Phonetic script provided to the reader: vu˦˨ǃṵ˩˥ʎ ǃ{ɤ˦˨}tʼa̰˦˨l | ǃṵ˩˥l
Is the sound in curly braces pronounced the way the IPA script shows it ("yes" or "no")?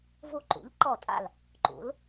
no